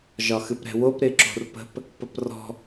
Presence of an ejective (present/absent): absent